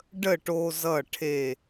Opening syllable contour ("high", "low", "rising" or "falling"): falling